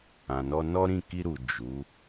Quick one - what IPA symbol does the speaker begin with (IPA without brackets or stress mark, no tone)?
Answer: ã